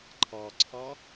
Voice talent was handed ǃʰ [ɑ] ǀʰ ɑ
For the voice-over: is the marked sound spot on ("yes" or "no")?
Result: yes